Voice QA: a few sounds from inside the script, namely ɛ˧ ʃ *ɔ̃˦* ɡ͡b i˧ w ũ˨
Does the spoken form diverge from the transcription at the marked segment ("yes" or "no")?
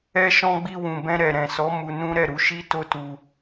yes